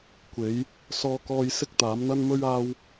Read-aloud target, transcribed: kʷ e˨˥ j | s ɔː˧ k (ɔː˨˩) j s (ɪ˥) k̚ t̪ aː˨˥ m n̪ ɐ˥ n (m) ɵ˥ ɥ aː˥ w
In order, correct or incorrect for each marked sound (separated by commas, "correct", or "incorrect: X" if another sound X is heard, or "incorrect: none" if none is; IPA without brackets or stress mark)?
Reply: incorrect: ɔː˧, correct, correct